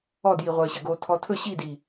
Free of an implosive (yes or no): yes